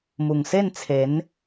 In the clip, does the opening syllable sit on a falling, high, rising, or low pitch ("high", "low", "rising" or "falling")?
low